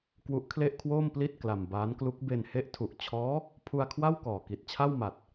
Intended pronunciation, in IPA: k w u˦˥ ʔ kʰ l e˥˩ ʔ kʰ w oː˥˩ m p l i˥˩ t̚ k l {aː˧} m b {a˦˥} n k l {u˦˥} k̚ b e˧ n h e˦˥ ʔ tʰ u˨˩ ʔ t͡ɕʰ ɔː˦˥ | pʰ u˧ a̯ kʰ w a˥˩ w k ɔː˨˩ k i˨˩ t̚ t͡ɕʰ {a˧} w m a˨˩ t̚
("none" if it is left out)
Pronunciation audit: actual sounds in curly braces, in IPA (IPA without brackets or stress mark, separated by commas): a˧, aː˦˥, u˦˥, a˥˩